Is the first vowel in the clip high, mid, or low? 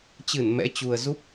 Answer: high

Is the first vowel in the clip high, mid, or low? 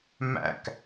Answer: low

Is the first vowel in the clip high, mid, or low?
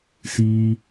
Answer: high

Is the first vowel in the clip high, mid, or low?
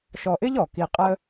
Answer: mid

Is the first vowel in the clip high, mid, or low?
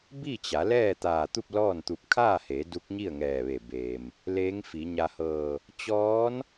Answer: high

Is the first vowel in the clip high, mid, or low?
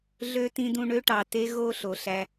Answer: mid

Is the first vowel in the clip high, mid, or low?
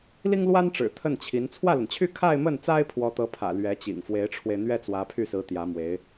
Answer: high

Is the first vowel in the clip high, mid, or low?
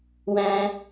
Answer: low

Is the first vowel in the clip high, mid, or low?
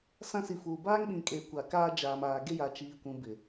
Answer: low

